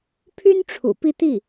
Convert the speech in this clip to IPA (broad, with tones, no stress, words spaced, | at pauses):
pʰy˥nʈ͡ʂʰṵ˨˩ pi˥˧t̪i˥˩